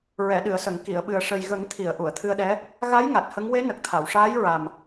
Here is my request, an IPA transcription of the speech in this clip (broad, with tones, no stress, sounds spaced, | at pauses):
ɹ ɛ˨˩˨ ɗ ɨ˨˩˨ ə̯ s ə˨˩˨ ŋ k i˨˩˨ ə̯ ɓ ɨ˨˩ ə̯ ʂ ə˨˩ j ɣ ə˨˩˦ ŋ t̪ʰ i˨˩˨ ə̯ ʔ u˨˩˨ ə̯ t̪ʰ ɨ˧ ə̯ ɗ ɛ˧˥ | ɣ a˧˥ j ŋ a˨˩ t̚ h ə˧˥ ŋ w e˧˥ n ə˨˩ k̚ t̪ʰ a˨˩˨ w ʂ aː˧˥ j ɹ a˨˩ m